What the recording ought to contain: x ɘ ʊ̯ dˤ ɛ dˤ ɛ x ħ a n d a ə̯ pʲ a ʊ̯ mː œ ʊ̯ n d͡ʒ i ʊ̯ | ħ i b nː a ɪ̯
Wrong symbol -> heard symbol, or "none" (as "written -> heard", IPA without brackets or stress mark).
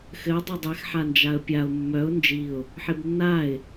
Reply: d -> d͡ʒ